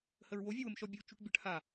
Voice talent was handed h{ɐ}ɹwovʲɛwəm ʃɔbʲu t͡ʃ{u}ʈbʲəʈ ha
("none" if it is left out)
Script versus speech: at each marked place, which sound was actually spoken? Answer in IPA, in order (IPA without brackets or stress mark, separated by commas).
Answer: ə, u